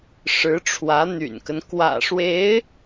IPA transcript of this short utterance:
ʂ ɻ̩˧˥ ʈ͡ʂʰ w ä˧˥ n̪ y̰˨˩ n k ə˦ n k w ä̰˨˩ ʂ w e˧˥ ɪ̯

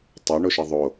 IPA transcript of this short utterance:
tˤ ɜ ɳ o ʃ ɜ ðˤ o

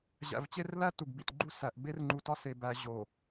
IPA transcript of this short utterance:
ʑ æ̰˨ v t͡ɕ e˦ r l æ˦ t u˨ ɡ b ḭ˨ t ɡ͡ǃ u˦ s æ˨ ʔ b e˦ r ŋ͡ǃ u˨ t ɒ˦ s e˨ b æ˨ ʑ o˨

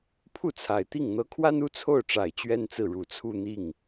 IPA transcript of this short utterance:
pʰ u˥˩ t͡sʰ a˨˩ ɪ̯ t̪ i˥˩ ŋ n̪ ɤ˧˥ kʰ w a˥ n u˥ t͡sʰ o˥˩ ʊ̯ ʈ͡ʂ a˨˩ ɪ̯ t͡ɕ ɥ ɛ˥ n t͡s ɹ̩˥˩ ɻ u˨˩ t͡sʰ u˥˧ n̪ i˥˩ ŋ

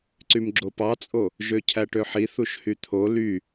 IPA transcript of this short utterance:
ǀ y m ɡ͡ǁ o p ɑ t͡sʼ o | ʒ ø cʰ æ ʈ ø ħ i θ u ʃ h y t̪ʰ o l y

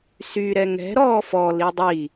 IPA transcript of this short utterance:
s y ɾ ɛ ŋ ɛ̤ ɾ ɔː f ɔ l i dˤ i

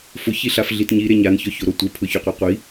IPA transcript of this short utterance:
f ʊ ç i ɬ a f ɮ i t ɲ i ɾ e ɲ a n ç ɔ ç o ɾ o tʷ e pʰ ʊ ç o qʷ ɛ qʷ i

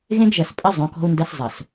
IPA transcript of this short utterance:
ɣ ẽ˦ ɡ ʒ ɐ˨ s pʼ ɘ˦ zˤ õ˨˦ k ɔ̤˦ u̯ n d ɐ˦ s zˤ ɐ˨ s

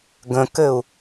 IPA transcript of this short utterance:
ɡ ə̃ k ɘ u̯

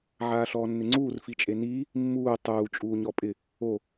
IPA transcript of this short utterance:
ʕ aː ɬ ɔː nː ɪ ŋ͡ǀ uː r f i t͡ʃʼ e n iː | mː uː tˤ uː t͡ʃʼ uː ɲ ɔ pʼ ɪ | o

